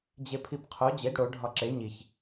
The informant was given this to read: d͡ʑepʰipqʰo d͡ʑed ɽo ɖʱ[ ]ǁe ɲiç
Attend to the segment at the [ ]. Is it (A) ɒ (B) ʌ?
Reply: A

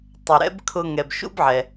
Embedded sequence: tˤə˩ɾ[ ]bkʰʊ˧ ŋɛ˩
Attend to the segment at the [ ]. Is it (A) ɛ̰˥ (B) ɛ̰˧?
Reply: A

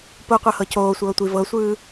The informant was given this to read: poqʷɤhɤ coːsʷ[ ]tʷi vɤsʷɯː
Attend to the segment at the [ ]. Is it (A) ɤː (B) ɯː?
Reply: A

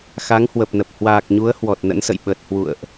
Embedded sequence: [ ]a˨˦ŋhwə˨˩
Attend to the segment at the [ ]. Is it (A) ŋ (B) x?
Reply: B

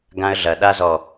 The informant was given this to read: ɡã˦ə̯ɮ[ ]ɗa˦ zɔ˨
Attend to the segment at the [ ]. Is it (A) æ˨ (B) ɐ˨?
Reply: B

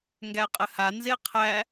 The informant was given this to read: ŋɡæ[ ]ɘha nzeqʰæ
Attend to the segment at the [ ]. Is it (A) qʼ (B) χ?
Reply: A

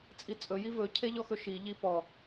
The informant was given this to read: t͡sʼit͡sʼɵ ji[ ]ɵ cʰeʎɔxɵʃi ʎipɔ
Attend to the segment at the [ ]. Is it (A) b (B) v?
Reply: B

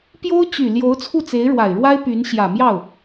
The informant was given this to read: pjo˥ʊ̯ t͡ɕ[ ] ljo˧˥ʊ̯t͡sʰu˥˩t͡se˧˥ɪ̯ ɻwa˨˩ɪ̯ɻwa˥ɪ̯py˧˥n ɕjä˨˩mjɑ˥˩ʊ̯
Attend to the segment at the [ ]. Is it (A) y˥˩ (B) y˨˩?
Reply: B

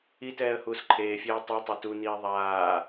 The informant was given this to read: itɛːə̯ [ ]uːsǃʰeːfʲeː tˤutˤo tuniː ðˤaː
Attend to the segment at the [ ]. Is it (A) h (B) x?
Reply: A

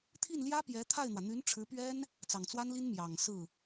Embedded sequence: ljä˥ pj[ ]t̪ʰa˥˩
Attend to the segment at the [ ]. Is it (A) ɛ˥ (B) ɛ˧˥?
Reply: B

